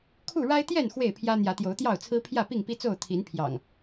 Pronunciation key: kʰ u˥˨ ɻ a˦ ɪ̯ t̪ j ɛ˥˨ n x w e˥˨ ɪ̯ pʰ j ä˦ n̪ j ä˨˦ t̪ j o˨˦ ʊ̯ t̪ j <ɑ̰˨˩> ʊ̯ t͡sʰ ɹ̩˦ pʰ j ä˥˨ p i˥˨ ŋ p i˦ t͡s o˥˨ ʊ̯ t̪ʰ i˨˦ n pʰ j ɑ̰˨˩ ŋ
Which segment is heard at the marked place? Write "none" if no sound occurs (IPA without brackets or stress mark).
ɑ˥˨